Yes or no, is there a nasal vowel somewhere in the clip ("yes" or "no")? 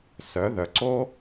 no